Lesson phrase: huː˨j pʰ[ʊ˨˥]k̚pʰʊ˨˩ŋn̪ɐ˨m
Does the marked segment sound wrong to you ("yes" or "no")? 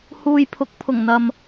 no